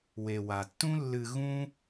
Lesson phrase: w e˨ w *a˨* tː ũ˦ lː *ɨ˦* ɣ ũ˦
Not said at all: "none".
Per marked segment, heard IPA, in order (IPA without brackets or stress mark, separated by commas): a˨, ɨ˧